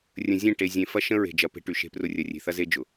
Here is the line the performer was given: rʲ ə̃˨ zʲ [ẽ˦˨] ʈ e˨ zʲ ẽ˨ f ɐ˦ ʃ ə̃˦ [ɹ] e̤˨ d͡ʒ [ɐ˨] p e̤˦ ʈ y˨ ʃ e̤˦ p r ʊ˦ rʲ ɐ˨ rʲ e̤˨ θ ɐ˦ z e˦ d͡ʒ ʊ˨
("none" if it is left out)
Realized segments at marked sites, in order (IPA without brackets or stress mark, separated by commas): ẽ˦˨, ɹ, ɐ˨